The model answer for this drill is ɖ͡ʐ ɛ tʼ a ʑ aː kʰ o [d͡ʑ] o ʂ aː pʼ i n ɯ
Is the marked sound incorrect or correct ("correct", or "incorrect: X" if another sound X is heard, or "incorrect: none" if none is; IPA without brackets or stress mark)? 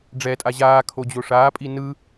correct